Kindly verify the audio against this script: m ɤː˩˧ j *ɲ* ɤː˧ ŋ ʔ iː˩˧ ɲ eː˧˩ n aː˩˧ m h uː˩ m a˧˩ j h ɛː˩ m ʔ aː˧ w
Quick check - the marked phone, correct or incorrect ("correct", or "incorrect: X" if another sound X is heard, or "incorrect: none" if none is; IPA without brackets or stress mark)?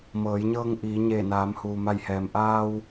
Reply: correct